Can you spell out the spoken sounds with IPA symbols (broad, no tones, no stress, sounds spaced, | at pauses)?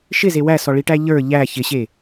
ʃ ɪ z e w æ s ɔ ɭ i ʈ æ ʎ ə˞ ʎ æ ç ɪ ɕ e